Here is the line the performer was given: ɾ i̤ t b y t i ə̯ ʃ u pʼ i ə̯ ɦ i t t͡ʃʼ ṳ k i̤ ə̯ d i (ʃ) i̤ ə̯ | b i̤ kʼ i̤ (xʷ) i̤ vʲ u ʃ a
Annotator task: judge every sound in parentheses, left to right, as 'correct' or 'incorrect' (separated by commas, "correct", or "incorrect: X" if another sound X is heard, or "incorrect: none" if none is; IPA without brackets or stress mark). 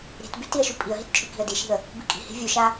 correct, incorrect: h